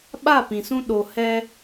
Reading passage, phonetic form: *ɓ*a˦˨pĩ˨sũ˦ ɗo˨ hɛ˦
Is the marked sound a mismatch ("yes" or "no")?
no